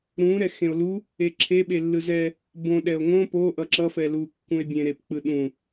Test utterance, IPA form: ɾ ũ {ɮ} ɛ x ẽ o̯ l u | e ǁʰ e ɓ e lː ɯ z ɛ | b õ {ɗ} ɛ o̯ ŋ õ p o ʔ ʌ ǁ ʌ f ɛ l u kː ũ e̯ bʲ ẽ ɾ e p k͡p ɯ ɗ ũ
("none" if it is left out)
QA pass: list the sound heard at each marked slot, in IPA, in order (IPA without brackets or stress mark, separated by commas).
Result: ɾ, ɗ